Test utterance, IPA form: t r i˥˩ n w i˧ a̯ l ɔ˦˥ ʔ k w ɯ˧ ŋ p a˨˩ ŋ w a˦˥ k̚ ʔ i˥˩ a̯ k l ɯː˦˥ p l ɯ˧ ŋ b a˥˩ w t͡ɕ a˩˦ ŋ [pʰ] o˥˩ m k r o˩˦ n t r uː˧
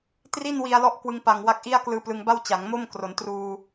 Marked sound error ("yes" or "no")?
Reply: yes